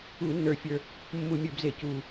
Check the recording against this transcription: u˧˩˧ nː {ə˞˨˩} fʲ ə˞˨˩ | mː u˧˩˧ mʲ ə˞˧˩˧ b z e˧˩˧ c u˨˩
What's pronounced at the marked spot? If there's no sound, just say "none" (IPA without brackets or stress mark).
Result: ə˞˨˩